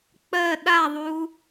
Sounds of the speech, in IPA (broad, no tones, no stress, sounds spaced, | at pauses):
k͡p ɜ ɗ a ðˤ u